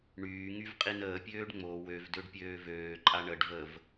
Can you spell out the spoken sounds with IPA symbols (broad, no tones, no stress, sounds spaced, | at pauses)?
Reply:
ɳ yː ŋ y v qʼ i n əː pʲ øː ɖ ŋ͡m o w ø v d ø ɖ pʲ øː v øː ǃʼ a ɳ ə ɖ v ə v